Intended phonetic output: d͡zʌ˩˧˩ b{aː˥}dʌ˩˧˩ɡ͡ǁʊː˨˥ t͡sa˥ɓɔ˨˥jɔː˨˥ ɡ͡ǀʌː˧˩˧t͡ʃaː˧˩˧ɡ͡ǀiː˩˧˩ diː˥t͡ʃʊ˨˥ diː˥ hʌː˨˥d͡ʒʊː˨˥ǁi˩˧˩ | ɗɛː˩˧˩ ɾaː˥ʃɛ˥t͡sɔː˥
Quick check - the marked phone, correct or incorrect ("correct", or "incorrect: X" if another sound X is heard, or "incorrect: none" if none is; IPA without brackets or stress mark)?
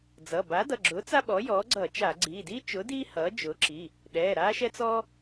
incorrect: aː˨˥